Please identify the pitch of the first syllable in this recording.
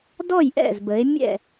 falling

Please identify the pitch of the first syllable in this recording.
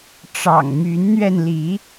low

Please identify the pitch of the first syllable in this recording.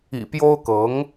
low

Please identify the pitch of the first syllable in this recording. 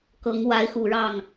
rising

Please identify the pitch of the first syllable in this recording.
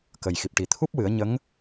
low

